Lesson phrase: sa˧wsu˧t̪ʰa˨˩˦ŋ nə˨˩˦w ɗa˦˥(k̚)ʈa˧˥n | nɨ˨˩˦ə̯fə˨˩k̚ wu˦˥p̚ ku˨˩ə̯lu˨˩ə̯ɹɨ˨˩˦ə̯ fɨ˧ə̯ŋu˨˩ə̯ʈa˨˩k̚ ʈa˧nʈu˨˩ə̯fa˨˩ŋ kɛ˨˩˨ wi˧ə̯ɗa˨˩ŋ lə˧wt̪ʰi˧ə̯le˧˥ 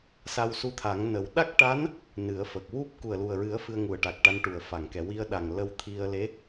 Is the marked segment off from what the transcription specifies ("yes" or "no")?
no